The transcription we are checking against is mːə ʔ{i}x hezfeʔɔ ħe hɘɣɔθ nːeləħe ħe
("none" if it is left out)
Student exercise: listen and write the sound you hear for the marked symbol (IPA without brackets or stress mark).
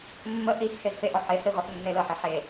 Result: i